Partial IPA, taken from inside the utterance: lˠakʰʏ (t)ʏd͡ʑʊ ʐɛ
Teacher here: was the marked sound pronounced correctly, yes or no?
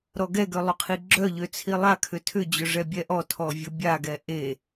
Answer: no